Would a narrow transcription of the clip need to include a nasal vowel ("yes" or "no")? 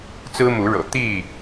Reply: no